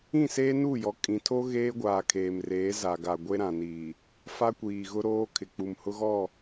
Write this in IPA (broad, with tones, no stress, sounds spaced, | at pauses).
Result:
ĩ˦˨ s eː˦ n u˦˨ j ɔ˨ kʼ ĩ˨ tʰ o˦ ɣ eː˦ ɡʷ aː˨ kʰ eː˨ m r eː˨˦ z a˨ ɡ a˨ ɡʷ e˦ ɾ ã˨ n iː˨ | f a˦ kʷ iː˨ ɣ ʊ˦ ɾ oː˦ kʰ ɪ˨ k͡p u˨ m h ʊ˦ ɣ ɔ˦˨